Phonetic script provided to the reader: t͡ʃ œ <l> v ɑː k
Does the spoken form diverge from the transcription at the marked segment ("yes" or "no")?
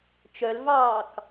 no